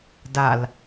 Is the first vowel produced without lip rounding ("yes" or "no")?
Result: yes